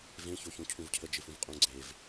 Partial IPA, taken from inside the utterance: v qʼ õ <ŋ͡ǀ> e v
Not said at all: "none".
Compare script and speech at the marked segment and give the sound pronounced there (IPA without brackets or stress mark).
ɡ͡ǀ